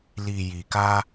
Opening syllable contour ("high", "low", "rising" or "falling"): low